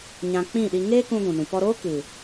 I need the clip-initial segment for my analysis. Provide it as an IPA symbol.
ɲ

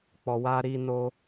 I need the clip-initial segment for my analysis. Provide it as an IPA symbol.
k͡p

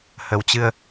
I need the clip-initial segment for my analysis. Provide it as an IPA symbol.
h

